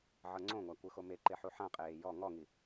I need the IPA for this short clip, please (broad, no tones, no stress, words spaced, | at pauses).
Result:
ʕɤŋ͡ǀõŋʷa kʷɯxomeǃe ħuħãqʼeː jɔ ŋɔŋi